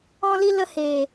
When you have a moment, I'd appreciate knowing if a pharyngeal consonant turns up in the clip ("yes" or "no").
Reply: no